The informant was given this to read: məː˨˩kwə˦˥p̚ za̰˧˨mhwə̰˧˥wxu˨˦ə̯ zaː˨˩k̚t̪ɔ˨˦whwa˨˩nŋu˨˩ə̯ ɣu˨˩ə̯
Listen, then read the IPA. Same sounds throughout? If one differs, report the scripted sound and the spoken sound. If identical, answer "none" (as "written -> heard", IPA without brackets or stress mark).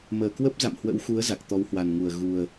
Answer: aː˨˩ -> a˨˩